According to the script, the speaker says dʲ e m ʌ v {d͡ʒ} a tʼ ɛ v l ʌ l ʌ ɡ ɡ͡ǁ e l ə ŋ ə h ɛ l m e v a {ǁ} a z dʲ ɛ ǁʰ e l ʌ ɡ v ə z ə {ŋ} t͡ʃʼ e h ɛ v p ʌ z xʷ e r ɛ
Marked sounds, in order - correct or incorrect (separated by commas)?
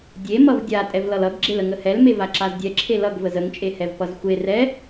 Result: incorrect, correct, correct